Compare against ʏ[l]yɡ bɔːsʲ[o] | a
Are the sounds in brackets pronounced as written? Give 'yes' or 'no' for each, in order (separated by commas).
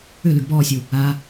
yes, no